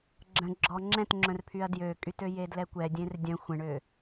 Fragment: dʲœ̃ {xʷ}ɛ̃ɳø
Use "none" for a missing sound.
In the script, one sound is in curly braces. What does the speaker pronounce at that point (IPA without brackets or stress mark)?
xʷ